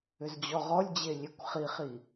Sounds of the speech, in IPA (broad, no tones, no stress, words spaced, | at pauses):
ʏzd͡ʑɔʁɔlʲd͡ʑe lʲekʷχiχi